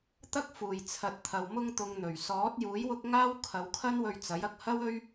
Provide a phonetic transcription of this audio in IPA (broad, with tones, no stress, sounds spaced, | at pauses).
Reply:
t̪ ɐ˥ k̚ f uː˨˩ j t͡sʰ ɐ˨˥ t̚ t̪ʰ ɐ˨ w m ʊ˧ ŋ t̪ ʊ˨ ŋ n̪ ɵ˨˩ ɥ s ɔː˨˥ t̚ j uː˨˥ j w ʊ˥ k̚ ŋ aː˥ w kʰ ɐ˨˧ w kʰ ɐ˥ n w ɵ˧ ɥ t͡s ɐ˨˥ j ɐ˨ k̚ h ɐ˥ w ɵ˥ ɥ